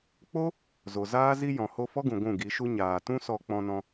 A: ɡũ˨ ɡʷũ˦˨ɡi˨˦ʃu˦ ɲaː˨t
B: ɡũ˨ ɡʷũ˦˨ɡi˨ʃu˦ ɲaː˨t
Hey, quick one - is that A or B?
A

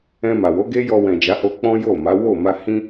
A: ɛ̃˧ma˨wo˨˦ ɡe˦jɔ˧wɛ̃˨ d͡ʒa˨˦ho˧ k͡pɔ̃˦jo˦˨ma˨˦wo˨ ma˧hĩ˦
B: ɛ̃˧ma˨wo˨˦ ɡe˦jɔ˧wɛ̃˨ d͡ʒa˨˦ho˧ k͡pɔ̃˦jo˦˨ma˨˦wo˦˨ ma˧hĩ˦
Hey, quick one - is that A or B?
B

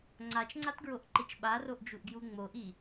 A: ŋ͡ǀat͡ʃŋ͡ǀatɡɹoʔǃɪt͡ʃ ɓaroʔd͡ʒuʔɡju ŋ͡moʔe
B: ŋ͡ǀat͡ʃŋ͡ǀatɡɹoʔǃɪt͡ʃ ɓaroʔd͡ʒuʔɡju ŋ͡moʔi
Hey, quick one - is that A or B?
B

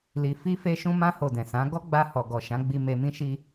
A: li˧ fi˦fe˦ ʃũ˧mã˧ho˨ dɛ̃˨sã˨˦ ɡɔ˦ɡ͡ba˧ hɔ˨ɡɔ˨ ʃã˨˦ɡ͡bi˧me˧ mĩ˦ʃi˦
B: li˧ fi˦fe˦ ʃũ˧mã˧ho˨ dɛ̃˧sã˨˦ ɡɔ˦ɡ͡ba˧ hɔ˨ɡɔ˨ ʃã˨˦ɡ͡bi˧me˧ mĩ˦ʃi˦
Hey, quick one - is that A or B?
A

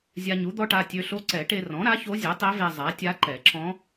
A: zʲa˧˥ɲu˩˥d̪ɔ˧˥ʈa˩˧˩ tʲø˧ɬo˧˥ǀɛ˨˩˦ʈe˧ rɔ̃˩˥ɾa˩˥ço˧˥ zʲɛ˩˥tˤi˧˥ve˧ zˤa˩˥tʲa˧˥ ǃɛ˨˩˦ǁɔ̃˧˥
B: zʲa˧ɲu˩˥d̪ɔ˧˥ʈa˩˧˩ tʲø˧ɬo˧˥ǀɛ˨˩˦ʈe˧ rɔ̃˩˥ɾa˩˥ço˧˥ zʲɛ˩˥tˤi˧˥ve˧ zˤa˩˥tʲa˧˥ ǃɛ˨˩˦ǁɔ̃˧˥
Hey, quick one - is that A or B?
B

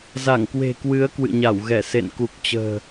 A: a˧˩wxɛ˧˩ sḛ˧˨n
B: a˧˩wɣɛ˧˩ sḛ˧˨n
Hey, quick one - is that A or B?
B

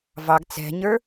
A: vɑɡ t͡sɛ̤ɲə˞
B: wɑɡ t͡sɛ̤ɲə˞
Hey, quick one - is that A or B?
A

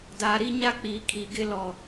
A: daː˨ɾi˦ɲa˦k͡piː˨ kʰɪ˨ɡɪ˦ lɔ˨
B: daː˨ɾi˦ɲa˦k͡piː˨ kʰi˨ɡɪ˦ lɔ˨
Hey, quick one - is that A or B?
B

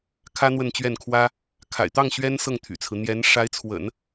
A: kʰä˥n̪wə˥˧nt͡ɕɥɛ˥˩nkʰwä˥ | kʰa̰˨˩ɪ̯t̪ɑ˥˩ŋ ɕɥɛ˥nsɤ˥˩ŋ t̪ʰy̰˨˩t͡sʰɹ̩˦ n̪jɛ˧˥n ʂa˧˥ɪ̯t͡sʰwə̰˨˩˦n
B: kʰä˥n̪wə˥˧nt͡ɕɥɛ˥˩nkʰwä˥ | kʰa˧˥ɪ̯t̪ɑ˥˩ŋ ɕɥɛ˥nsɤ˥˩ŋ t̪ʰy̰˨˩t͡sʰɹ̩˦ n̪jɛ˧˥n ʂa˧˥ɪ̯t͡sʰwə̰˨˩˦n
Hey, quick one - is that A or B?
A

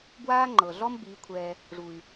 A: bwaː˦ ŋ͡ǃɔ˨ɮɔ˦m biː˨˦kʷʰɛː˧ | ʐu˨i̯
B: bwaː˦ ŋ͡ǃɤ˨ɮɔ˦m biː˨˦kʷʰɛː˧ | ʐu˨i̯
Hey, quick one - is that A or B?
B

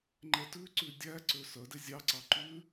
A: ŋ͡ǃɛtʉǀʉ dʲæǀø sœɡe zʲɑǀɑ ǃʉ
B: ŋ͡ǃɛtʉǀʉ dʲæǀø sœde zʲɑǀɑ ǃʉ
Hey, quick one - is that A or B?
B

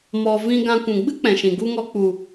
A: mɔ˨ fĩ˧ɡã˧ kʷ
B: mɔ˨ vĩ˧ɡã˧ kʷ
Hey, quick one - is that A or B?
B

